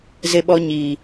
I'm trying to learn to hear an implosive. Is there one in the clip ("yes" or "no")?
yes